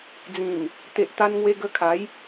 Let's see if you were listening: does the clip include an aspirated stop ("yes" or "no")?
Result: yes